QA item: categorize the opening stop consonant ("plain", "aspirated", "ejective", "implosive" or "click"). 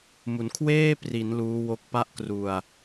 aspirated